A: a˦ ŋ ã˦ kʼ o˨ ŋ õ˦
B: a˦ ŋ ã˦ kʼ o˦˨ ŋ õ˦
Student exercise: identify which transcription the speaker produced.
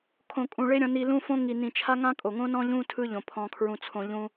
A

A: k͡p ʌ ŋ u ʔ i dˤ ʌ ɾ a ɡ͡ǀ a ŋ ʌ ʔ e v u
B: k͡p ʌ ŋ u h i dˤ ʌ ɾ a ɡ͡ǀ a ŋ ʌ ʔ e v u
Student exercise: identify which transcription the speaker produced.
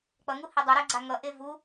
B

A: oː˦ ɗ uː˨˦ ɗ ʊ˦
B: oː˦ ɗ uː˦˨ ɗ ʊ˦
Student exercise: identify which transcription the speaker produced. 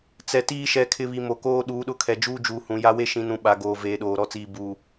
A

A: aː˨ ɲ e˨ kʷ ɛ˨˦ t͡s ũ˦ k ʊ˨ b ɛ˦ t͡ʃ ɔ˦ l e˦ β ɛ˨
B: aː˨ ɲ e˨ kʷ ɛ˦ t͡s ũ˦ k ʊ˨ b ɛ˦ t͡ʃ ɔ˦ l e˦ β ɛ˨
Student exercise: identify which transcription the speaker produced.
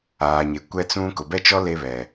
B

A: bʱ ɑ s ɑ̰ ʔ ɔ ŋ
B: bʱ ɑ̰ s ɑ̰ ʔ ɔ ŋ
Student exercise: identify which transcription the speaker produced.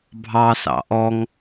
A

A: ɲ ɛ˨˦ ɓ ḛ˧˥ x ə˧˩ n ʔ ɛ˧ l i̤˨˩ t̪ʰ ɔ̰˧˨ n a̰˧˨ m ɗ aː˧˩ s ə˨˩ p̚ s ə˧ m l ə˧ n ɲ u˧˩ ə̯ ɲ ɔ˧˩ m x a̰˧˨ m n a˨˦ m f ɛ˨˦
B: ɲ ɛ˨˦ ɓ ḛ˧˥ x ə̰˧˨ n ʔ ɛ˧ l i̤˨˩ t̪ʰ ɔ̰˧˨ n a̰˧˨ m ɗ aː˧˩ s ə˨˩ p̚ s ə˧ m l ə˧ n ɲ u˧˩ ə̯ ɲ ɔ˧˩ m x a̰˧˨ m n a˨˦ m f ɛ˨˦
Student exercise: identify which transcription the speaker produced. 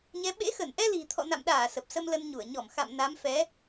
A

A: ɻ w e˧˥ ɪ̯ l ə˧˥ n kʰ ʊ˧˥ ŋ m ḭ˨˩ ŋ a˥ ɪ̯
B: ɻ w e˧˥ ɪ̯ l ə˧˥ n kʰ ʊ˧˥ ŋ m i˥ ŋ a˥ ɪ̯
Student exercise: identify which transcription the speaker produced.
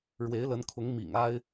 A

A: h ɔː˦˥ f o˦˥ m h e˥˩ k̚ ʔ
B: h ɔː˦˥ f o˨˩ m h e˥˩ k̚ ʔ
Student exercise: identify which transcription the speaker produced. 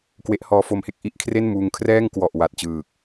A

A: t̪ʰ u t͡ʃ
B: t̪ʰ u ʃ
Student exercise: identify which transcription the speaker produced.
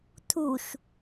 B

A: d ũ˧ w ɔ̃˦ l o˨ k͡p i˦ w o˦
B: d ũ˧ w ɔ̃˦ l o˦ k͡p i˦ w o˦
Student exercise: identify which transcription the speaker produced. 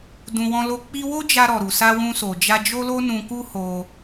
B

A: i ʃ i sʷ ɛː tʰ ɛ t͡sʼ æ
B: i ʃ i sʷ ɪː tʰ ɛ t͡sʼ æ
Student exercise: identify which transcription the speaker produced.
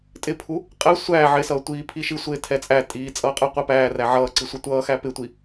B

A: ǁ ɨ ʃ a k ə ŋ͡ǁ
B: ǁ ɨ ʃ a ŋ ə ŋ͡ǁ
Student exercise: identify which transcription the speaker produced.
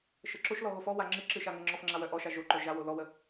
B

